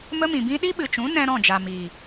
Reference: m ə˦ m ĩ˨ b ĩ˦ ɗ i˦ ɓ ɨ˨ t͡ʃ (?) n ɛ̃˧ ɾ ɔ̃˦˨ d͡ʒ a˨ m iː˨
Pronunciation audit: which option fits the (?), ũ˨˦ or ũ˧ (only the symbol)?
ũ˨˦